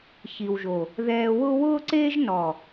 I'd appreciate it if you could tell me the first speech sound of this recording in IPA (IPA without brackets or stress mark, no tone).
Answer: ç